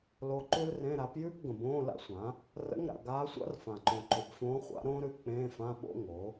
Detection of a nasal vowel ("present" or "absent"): present